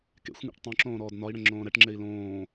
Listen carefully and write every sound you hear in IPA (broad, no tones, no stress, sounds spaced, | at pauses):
k ḛ xʷ ŋ ɛ̰ ʈ tˤ õ ǁ õː ɾ ɔː d n ɒ i̯ ɽ ə̃ ŋ͡ǁ õː ɾ ɛ ʈ ŋ͡ǁ e i̯ l õː